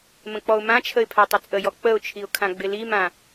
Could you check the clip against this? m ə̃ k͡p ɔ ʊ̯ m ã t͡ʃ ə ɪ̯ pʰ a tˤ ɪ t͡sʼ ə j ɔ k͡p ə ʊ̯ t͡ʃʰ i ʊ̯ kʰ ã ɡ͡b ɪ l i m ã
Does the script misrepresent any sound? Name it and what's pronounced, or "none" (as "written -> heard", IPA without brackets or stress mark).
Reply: t͡ʃ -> t͡ʃʰ